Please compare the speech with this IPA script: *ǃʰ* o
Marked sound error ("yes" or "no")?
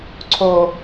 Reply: yes